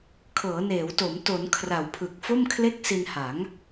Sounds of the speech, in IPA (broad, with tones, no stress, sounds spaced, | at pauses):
kʰ ɤː˩˦ n eː˩˦ w t o˩˦ m t o˩˦ n kʰ r a˨˩ w pʰ ɯ˨˩ k̚ f o˥˩ m kʰ l e˥˩ k̚ s i˧ n h a˩˦ ŋ